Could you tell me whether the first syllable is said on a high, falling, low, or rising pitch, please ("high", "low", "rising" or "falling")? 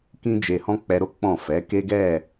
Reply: high